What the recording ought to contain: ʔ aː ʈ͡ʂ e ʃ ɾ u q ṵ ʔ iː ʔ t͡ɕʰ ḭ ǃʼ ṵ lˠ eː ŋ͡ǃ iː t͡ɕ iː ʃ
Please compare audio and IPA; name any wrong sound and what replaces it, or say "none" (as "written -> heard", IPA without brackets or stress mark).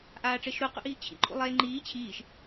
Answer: t͡ɕ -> t͡ɕʰ